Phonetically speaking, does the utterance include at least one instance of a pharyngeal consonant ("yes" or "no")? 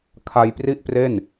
no